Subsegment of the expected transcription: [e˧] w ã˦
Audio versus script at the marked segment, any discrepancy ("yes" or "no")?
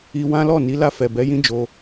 yes